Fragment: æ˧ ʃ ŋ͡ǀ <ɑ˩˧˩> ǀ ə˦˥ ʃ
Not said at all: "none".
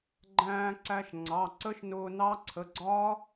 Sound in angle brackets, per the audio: ɑ˩˧˩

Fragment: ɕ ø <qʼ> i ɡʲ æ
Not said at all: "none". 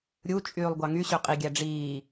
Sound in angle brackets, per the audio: qʼ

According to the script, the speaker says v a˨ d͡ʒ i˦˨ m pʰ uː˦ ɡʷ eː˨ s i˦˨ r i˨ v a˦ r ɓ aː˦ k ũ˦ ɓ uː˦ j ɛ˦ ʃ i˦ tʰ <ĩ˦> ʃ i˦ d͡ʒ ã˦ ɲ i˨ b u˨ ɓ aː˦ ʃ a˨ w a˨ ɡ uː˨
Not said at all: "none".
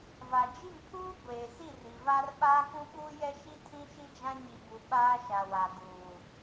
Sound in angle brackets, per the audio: ĩ˦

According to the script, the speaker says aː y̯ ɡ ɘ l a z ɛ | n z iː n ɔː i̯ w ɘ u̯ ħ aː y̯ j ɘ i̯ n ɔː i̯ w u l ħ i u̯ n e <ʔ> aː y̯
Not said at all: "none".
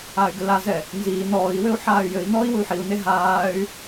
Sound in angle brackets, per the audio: ɦ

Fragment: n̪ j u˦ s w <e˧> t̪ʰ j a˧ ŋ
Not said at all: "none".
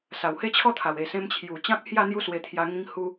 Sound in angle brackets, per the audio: e˧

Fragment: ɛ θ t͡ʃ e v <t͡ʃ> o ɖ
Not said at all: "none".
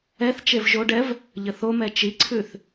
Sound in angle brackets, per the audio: ʒ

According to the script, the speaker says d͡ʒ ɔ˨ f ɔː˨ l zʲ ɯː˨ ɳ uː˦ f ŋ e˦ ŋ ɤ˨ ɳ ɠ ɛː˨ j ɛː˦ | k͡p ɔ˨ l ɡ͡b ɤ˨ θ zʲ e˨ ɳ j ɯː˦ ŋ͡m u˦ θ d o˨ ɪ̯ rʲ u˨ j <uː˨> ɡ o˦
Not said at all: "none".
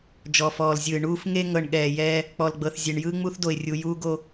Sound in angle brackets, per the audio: uː˦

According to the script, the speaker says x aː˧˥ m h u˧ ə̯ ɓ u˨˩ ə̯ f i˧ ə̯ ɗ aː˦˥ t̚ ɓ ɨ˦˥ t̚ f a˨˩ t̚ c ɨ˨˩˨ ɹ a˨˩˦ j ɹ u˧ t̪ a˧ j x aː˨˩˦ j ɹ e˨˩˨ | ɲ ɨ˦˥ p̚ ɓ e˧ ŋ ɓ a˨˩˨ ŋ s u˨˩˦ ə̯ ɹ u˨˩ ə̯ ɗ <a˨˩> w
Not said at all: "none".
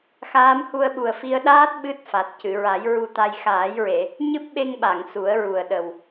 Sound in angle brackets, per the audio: ə˨˩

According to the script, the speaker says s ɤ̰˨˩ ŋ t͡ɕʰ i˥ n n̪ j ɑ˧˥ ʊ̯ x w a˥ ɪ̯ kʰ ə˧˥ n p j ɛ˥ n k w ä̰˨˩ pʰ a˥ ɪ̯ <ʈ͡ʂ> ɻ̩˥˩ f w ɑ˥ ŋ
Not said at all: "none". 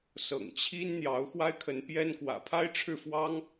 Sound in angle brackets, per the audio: ʈ͡ʂʰ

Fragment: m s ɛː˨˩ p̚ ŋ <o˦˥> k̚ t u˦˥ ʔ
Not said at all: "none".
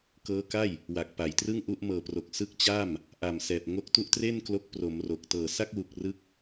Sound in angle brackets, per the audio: o˦˥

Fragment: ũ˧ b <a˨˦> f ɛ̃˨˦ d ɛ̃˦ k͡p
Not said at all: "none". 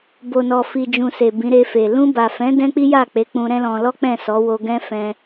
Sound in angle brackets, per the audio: a˨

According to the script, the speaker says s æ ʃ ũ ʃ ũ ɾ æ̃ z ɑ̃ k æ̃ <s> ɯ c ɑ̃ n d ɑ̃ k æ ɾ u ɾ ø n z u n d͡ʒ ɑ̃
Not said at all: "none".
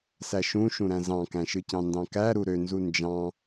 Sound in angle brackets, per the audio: ʃ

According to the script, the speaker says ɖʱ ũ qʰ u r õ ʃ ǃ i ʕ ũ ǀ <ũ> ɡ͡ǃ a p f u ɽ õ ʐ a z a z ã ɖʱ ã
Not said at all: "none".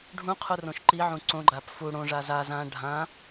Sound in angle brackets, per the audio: õ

